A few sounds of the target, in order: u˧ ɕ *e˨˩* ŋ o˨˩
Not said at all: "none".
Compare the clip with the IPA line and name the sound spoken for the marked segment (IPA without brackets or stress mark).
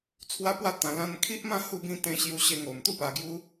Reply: e˧